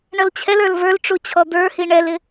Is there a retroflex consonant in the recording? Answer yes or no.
yes